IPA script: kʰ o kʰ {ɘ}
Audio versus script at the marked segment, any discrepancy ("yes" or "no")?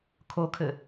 no